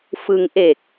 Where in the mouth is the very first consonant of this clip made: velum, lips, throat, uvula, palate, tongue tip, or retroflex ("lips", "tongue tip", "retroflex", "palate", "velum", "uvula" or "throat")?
lips